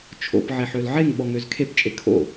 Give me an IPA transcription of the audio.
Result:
t͡ʃʰo̰p ʕeħølʕeŋɓɔŋ øzkʰept͡ʃʼe kʰo̰

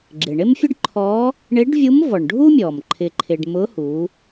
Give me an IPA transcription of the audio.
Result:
ɡ͡ǁɪ˩ɳɪ˥mfʲʊ˥ɖ ǃʰɔ˧˥ | ɳɪ˧˥ɖvʲu˧˥m vɔ˩ɳɖʱu˥mʲɔ˩m ǃʰɪ˧ǃʰɪ˧ɖ mʊ˧˥hu˩˧

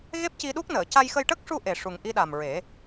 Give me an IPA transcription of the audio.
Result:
ɣe˦˥p̚ci˧ɗu˦˥k̚nəː˨˩˨ ca˧jxə˧jʈə˦˥k̚ ʂu˧ ʔe˨˩ʂu˨˩ŋ ʔi˧ɗa˨˩mɹe˨˩˦

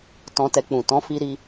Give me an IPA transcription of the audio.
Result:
tɔ̃˧tɛ˧k͡pũ˨ tɔ̃˨˦fi˧ ɾi˦

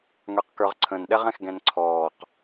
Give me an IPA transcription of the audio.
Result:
ŋə˞qkə˞ʁǀʰə̃nɗɛʁ ɛ̃xɡɛ̃nǀʰɔːq

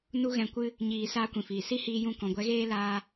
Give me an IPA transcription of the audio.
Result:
nu˦ɣɛ̃˧kʷɨ˦ | ɲiː˧ saː˦kʷĩ˨fiː˨ si˦ hiː˧jũ˧ kɔ̃˨ɡʷɛ˨˦ɣeː˦ laː˦

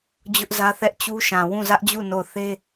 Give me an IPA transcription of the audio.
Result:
d͡ʑʊ˦ʔzä˦ θɛ˦ʔt͡ɕu˦ʃã˨ wũ˦˨zä˦ʔd͡ʑu˦˨ no˦˨ʊ̯ θe˦

